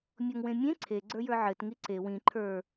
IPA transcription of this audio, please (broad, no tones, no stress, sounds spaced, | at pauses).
mʲ ɔ ŋ w ẽ mʲ ẽ ǀʰ e ɡ͡ǀ ə˞ j ə˞ ʕ ɘ t ŋ i ǀ e w ĩ ǃʰ ə˞